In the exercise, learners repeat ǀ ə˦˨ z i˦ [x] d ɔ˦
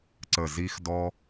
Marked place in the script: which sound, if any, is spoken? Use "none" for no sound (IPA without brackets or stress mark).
x